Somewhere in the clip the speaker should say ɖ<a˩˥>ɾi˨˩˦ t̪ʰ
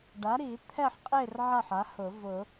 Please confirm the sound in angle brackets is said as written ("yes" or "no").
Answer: yes